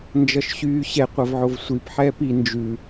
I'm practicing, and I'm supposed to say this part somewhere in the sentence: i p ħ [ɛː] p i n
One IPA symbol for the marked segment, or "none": ɛː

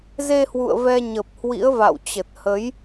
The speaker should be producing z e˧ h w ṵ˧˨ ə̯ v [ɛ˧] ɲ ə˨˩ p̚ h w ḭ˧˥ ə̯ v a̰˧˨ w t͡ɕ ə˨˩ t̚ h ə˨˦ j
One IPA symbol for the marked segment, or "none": ɛ˧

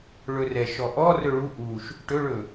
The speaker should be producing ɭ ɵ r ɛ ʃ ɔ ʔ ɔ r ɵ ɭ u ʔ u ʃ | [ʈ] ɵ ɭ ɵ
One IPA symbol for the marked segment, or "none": ʈ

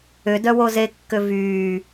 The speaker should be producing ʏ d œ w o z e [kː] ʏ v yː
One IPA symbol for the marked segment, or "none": kː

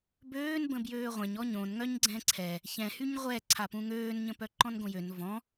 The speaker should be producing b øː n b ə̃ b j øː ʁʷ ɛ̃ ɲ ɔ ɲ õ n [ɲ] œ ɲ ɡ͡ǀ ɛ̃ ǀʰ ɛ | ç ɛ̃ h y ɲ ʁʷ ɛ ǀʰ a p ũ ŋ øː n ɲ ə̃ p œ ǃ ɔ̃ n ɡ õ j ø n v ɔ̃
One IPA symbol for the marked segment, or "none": ŋ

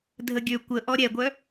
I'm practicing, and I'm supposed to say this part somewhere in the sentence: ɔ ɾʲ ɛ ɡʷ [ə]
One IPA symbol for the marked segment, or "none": œ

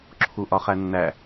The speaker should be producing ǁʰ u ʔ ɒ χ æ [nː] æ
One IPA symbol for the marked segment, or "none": nː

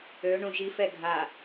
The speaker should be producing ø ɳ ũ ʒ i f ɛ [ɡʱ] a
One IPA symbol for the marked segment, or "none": ɡʱ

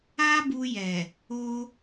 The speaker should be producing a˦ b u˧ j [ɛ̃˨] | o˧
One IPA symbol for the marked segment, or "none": ɛ˨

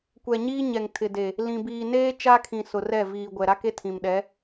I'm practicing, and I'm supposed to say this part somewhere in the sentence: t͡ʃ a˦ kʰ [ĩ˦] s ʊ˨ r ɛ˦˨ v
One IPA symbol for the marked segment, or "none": ĩ˨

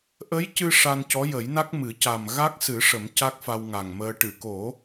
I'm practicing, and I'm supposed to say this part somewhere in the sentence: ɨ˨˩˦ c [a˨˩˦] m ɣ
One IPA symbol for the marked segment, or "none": a˨˩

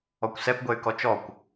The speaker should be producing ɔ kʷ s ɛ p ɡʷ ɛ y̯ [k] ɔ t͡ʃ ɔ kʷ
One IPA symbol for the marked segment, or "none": k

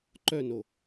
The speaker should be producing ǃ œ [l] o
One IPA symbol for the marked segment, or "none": n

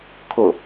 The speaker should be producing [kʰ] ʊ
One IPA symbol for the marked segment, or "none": kʰ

